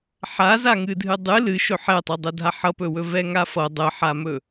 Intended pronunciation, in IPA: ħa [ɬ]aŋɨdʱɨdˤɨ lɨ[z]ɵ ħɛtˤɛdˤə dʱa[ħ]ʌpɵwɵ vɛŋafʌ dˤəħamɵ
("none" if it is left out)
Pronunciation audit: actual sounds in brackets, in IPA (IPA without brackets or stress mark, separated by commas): z, ʃ, ħ